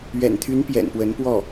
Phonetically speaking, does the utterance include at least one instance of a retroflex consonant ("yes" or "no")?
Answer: no